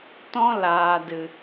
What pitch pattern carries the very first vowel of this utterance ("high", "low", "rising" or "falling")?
high